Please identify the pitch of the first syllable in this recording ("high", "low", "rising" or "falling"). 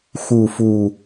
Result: low